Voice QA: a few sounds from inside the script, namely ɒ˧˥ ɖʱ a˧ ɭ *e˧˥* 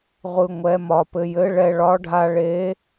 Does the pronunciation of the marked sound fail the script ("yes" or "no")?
no